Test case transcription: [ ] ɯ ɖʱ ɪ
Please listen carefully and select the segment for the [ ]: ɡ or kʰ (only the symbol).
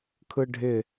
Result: kʰ